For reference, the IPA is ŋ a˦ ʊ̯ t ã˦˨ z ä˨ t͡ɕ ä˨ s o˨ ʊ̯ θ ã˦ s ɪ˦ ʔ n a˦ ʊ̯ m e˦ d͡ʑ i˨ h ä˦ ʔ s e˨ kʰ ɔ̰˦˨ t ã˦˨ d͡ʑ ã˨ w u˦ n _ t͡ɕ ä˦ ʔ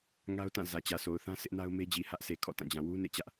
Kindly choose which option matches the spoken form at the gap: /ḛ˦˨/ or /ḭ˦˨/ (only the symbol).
ḛ˦˨